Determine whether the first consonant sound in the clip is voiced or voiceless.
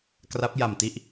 voiceless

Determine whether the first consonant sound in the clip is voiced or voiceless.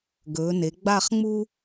voiced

